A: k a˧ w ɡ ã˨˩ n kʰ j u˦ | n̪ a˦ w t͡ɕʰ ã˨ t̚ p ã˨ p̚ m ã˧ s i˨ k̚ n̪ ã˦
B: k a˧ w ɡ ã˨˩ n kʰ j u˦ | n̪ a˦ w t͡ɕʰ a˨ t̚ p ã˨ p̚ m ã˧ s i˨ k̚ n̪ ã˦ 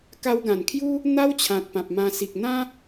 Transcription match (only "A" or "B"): A